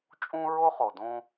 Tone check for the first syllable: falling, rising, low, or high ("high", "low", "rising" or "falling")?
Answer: high